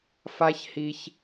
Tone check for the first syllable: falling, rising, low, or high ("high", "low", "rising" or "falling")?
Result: high